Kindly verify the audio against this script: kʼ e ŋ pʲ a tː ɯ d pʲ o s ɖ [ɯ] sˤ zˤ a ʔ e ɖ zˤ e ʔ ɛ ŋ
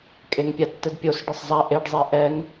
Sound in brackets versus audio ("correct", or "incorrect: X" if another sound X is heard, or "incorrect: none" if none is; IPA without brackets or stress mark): correct